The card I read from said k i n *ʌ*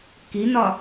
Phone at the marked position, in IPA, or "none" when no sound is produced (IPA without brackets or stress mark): ɒ